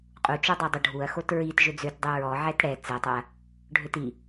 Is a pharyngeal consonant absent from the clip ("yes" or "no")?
no